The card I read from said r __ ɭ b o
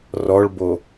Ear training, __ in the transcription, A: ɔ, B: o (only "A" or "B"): A